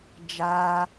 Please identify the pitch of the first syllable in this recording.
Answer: high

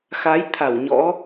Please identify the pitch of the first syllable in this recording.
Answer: rising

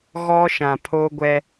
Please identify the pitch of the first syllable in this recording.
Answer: high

